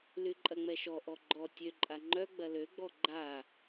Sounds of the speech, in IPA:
lyǃʼɐŋ͡mɛʃɔ ʔɔɡ͡ǃɔ tʲø ǃʼaŋ͡ǃœ ɡ͡bɐløɡ͡bɔ ɡ͡ǃa

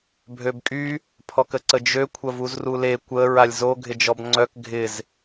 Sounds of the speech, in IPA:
bʱøbkʼy | pʰɔkəǀəd͡ʒø kʷʰɐvuzrule kʷə ɹalʲzo ɡʱɪd͡ʒɔbŋ͡ǀœk ɡʱɪz

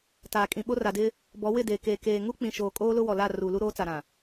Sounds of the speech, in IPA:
taː˨kʼĩ˨ ɓo˦ra˨dɪ˦ | bɔ˨˦wɪ˦˨deː˨ keː˨keː˨ ŋu˦k͡pĩ˨ʃoː˨ kʼoː˦lʊ˦wɔ˨la˦˨ ruː˨lu˦ ɾoː˦t͡sa˨ɾã˨

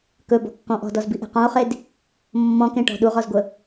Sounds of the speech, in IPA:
kɵbɔ̤kːɔ̃ ʔɔ̤dɔzbiʔe̤ qɔ̃o̯χed | mːɔ̃kẽʈɔ̤ ɗuʁɔzɡʷə

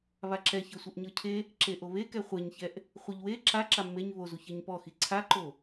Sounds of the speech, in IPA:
βaǁɛçɤsʷɯʔ ɲɤcʰe | ǁeʔoβekɛ χʷeɲçɛʔ | χʷiʎwe ǁa ǁamːeɲ βozu çɛɲpɔxi ǀʰaǃo

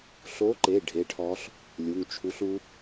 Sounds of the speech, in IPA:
ɬo˧˥ǃe˩˧˩ ɖʱe˧˥ʈʰɔ˧˥ɬ | lʲu˩˧˩ŋt͡ʃʰu˧˥ɬu˧˥

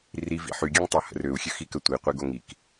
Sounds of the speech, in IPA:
rivḭ ħyɡʲaŋtˤohə̰ røu̯xʲøxikə tʷiqʷiɡo ŋik

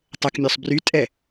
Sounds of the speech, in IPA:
tˤəkmʲɵsˤ brytʼɛ

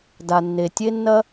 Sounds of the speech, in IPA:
da˩nːe˩tʲe˥nːɐ˥

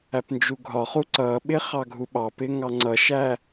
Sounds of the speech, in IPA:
æpnd͡ʒuɡʱɒχu ǀʌɓɪ χɑɡʱuɓɑpɪ ŋɑŋ͡ǀʌʃæ

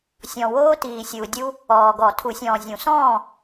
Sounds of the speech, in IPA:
sʲɔ̃˨woː˦tiː˨ sʲuː˨dʲu˦ | ɔː˨ɡɔ˨˩˦ tʰu˨˩˦sʲɔ̃ː˨zʲũ˨˩˦sɔ̃ː˥˨

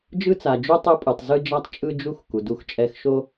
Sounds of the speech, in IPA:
d͡ʒɯ˥t͡sa˩d͡ʒu˥ tˤɯ˥pʼu˩tˤ zɯ˥d͡ʒa˥tˤ t͡ʃʼɯ˥d͡ʒu˥x ku˩du˥xt͡ʃʼɛ˥x ʃo˥

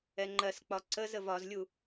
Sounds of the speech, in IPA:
ɛŋ͡ǃɜsk͡pɒ ǀəz əvɒzlʲu

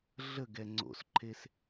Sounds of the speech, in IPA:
ɮəɡɛ ŋ͡ǀo̰sǃʰes

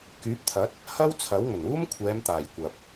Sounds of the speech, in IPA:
kyː˨˥p̚t̪ʰɐ˨˥t̚ | hɐ˥w t͡sʰɐ˨˥wŋɵ˨˩n uː˥mkʷʰɛː˨˧mt̪aː˨˩j kʷɐ˨p̚

